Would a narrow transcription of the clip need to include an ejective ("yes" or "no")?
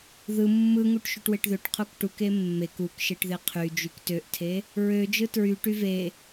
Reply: no